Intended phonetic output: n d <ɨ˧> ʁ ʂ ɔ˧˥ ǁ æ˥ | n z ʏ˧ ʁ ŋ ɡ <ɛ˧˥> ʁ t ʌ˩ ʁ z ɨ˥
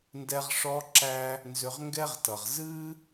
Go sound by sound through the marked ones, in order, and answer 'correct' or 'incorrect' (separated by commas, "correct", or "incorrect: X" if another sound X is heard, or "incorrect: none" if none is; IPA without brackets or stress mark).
incorrect: ɛ˧, incorrect: ɛ˥